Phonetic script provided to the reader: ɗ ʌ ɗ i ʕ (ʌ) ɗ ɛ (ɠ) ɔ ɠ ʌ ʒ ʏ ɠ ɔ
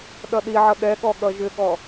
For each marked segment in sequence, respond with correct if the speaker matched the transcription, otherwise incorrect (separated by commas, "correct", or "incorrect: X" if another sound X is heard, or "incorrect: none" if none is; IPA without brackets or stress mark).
correct, correct